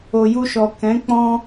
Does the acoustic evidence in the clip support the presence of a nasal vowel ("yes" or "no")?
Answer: yes